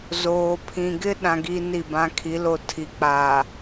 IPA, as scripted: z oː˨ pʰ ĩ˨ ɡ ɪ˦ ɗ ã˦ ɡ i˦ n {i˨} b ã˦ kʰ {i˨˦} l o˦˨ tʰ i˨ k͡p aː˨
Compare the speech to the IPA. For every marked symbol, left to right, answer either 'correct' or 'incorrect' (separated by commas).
incorrect, correct